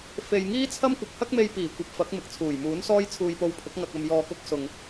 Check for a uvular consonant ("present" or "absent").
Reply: absent